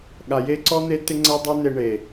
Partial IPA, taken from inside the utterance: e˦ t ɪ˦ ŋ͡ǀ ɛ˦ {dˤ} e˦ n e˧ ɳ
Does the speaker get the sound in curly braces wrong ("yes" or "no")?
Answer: no